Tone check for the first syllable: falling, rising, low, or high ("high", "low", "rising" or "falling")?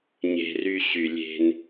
high